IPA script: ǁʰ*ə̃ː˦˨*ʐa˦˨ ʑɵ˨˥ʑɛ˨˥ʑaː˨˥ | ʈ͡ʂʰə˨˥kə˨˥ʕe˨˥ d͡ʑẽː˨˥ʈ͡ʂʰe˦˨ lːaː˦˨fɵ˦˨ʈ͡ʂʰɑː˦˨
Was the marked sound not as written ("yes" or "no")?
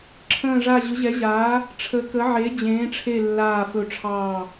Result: no